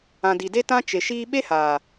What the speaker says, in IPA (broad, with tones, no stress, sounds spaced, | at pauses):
ã˨ d i˨ d e˦ t ã˦ t͡ʃ e˨ ʃ iː˧ ɓ e˦ h aː˨